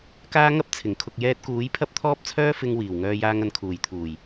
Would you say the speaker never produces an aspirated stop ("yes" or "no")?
no